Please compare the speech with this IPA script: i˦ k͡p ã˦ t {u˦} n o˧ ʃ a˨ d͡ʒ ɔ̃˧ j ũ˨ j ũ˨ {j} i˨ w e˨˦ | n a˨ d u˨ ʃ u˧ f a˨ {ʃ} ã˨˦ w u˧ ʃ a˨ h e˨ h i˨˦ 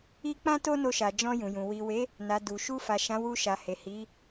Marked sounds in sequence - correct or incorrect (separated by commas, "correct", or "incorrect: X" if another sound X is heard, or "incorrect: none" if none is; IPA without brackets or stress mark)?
incorrect: o˦, incorrect: w, correct